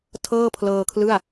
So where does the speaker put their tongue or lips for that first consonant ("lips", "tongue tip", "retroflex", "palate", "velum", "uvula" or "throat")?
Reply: tongue tip